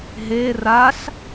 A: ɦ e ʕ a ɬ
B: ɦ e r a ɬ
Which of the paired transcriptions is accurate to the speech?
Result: B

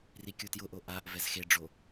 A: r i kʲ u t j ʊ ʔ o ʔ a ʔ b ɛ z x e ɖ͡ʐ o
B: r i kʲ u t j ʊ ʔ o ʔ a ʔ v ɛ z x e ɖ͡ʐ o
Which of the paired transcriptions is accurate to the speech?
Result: B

